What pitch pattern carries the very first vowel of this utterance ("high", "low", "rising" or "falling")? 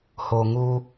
low